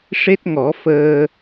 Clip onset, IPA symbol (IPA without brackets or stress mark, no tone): ʂ